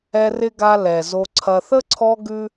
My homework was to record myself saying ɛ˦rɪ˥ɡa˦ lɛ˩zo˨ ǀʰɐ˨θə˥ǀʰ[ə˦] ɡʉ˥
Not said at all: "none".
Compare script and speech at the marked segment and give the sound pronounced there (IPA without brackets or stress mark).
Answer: ɔ˦